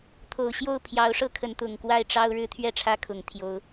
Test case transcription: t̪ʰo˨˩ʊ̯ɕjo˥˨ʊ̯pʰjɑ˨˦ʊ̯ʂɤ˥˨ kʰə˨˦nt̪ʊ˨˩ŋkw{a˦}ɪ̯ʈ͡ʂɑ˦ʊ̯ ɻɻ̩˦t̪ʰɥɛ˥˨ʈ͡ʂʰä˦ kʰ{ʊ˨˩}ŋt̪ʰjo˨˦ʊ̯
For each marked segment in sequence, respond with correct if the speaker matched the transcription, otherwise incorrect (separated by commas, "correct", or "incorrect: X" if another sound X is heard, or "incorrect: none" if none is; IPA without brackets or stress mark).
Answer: incorrect: a˥˨, correct